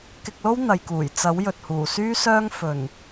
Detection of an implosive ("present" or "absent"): absent